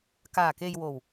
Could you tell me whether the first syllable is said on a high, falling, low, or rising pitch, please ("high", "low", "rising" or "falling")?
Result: low